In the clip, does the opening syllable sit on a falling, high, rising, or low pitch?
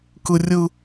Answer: high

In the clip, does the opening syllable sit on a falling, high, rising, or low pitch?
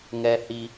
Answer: high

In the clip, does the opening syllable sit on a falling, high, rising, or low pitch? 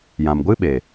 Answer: low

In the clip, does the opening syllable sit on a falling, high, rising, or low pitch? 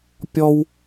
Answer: high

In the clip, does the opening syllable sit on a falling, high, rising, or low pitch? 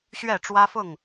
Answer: falling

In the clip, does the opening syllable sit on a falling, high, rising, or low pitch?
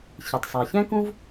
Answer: low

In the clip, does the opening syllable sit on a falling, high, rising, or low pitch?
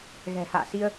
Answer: low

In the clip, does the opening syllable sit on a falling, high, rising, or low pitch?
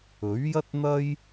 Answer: rising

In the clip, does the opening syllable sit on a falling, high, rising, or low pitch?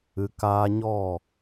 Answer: low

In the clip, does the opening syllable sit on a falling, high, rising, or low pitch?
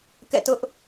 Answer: falling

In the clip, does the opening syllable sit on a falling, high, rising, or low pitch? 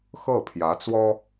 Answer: falling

